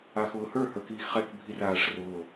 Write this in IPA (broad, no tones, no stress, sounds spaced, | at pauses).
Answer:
a x ʊː h ə˞ h ə˞ k iː x χ ɛ k bʱ i r aː ʂ r ʊː